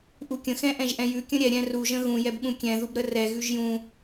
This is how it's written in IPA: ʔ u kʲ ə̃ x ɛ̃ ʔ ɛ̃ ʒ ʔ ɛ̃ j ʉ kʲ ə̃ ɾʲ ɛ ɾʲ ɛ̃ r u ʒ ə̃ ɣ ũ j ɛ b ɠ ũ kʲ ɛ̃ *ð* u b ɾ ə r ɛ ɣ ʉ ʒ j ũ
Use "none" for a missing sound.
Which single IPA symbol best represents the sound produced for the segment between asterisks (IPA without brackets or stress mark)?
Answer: ð